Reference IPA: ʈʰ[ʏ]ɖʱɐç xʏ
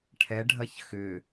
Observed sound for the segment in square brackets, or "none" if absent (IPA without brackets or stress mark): ɛ